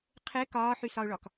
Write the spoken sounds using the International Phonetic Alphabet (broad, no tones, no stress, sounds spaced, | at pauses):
qʰ ɘ k ɒː ħ y s ɒ ʊ̯ ɭ ɒ k